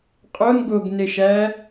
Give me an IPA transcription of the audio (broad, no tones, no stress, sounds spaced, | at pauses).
qʼ o n ɡ o ɡ n e ʃ æ